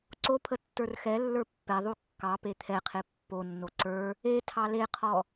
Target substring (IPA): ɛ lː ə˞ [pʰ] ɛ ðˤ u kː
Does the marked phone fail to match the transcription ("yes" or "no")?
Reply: yes